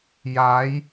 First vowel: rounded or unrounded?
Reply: unrounded